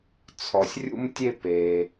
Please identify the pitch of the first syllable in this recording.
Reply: low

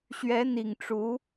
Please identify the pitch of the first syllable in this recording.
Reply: rising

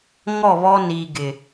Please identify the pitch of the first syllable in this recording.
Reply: falling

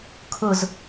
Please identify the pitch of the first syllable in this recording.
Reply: falling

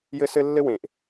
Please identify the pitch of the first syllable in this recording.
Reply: high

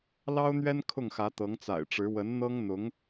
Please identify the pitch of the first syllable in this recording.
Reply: high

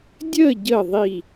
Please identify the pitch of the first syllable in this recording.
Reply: falling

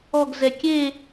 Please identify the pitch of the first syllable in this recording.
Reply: falling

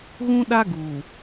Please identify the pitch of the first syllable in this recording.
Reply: high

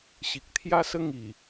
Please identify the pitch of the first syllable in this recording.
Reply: low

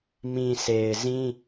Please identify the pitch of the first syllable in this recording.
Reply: low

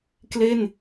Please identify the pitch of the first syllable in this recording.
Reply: falling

